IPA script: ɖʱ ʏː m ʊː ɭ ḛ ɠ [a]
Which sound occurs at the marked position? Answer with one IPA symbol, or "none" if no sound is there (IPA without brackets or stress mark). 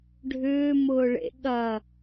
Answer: ɐ